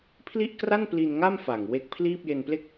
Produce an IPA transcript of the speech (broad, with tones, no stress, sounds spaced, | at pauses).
pʰ l i˥˩ ʔ k r a˥˩ n p l i˧ n ŋ a˥˩ m f a˨˩ ŋ w e˦˥ k̚ pʰ l iː˥˩ p̚ j e˧ n p l e˥˩ k̚